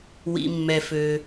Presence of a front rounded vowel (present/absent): present